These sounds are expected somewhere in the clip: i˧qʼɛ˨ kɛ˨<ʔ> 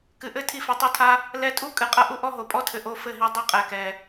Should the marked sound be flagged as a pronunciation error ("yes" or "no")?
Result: yes